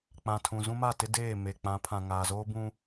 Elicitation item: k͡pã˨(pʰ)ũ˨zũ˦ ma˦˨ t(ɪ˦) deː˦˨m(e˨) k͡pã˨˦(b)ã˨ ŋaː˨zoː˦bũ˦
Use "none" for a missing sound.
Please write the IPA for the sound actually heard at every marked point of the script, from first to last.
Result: tʰ, ɪ˦, e˨, pʰ

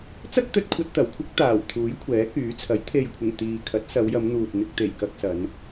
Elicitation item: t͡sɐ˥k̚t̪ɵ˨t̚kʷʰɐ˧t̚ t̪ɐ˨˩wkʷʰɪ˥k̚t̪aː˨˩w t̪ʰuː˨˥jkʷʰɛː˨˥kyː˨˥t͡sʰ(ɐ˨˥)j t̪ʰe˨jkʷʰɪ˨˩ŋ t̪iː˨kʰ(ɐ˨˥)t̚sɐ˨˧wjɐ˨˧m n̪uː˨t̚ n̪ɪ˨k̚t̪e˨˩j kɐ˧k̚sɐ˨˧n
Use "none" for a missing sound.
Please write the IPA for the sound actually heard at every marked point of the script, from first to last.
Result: ɐ˨˥, ɐ˨˥

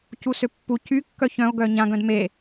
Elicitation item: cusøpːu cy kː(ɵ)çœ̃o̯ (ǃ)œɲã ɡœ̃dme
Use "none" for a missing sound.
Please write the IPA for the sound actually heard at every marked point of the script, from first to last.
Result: œ, ɡ

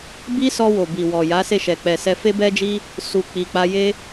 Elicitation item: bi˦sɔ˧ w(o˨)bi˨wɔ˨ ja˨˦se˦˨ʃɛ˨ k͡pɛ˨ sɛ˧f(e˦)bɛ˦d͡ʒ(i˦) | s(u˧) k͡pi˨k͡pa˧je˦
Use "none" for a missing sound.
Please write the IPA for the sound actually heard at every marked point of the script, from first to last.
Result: o˨, e˦, i˦, u˧

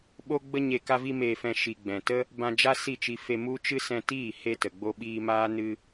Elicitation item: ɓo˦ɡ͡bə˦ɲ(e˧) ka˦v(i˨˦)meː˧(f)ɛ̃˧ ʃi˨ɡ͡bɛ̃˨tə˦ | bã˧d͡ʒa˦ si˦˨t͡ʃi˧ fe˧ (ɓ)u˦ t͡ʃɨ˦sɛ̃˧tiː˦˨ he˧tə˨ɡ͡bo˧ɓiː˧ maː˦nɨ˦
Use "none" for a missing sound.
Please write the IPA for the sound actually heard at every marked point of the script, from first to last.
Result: e˧, i˦, f, m

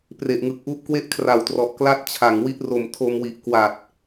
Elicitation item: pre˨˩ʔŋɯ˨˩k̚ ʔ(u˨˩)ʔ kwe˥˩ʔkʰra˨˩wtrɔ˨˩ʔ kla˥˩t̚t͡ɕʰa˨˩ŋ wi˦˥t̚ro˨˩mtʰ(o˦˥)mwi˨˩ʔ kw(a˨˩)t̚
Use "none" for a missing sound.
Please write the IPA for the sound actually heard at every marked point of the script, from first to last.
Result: u˦˥, o˧, a˨˩

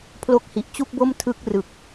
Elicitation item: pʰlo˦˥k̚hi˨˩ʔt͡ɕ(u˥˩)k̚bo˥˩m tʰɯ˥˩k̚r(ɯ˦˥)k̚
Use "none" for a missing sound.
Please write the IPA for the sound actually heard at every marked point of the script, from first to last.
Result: u˥˩, ɯ˨˩

